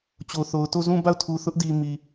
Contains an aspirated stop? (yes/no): yes